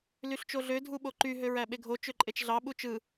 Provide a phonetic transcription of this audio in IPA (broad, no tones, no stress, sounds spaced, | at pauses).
l y ɬ t͡ʃ o ɮ ø dʱ u ɓ o ǃ y ɦ ø ɹ æ ɓ e ɡʱ o t͡ʃ ø ǃʼ e t͡ʃ ɮ ɑ ɓ u t͡ʃ ɯ